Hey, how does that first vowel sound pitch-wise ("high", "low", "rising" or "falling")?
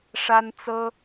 high